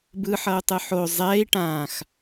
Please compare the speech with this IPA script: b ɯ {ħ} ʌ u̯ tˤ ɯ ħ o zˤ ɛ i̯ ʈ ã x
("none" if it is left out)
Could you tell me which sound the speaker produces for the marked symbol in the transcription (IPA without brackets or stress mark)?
ħ